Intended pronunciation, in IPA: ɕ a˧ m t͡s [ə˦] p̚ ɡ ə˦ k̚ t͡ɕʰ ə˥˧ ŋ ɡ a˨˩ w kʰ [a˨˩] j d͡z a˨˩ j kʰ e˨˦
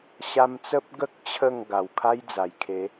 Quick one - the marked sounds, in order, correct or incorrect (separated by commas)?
correct, incorrect